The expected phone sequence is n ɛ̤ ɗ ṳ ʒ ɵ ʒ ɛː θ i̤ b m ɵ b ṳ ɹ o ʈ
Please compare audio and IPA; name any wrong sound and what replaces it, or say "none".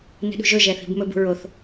ʈ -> θ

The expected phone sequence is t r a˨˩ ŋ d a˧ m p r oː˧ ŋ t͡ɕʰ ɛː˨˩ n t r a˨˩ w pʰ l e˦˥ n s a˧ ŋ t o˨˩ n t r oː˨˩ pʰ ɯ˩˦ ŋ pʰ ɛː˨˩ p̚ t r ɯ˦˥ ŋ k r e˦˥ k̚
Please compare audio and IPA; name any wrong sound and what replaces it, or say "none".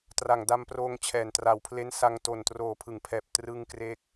none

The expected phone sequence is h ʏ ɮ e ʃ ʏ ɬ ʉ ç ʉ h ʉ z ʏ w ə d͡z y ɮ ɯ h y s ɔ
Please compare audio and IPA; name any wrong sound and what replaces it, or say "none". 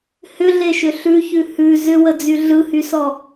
none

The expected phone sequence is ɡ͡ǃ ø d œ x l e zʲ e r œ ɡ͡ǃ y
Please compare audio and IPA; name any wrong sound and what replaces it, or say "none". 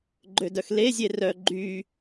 none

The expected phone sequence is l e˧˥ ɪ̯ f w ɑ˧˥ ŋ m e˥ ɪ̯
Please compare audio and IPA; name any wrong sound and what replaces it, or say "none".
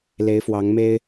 none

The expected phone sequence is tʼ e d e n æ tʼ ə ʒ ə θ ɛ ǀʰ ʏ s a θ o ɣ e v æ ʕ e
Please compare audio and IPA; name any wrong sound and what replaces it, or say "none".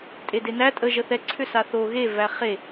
ʕ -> χ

